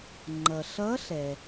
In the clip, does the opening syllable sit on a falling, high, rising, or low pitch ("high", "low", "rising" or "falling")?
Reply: low